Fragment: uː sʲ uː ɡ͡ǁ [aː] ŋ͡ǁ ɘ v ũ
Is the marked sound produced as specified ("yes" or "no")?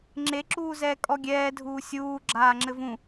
yes